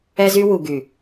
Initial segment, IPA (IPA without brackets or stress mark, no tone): ɛ